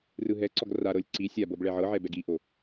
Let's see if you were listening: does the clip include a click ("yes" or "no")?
yes